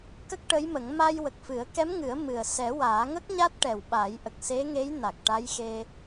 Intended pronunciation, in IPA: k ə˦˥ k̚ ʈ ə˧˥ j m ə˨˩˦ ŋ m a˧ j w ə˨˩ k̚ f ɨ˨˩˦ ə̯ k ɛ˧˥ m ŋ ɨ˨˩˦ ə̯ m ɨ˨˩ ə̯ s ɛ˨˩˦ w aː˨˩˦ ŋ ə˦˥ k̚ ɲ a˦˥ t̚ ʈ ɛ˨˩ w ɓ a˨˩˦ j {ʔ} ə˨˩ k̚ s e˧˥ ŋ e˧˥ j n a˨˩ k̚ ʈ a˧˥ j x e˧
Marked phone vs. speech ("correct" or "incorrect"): correct